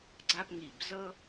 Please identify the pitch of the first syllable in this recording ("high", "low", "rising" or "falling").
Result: high